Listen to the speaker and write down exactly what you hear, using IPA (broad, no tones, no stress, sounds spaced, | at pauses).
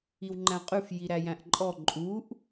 i w ŋ͡ǃ æ̃ qʼ ʉ f j i ɾ æ j æ̃ ʔ ǃʼ ɔ ǃʼ u ʔ